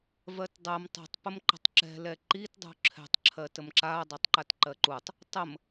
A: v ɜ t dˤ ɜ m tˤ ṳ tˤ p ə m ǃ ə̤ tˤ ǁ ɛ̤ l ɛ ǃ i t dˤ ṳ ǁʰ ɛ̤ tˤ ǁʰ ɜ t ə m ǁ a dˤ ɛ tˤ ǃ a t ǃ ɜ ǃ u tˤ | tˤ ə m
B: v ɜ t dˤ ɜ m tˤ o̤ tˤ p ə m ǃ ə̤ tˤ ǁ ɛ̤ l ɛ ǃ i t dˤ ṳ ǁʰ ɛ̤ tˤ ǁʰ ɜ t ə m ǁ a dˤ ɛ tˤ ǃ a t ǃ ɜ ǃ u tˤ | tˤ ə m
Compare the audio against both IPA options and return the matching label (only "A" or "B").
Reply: A